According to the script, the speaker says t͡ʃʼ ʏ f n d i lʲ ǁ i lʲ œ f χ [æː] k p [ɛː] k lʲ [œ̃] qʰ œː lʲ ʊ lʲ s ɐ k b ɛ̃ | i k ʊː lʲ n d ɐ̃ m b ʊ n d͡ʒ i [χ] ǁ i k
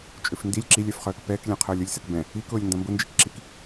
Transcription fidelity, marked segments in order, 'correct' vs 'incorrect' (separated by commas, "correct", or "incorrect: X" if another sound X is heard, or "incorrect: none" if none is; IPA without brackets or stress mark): incorrect: œː, correct, incorrect: ɛ̃, incorrect: k